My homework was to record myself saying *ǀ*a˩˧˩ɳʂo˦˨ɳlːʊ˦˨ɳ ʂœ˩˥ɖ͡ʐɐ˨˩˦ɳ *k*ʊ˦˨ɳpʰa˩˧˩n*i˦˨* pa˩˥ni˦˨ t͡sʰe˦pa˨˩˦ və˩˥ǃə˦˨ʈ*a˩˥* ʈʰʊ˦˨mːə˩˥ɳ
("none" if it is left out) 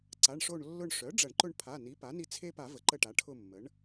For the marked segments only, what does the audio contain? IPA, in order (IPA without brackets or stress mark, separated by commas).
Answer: ǀ, ǃ, i˩˥, a˩˥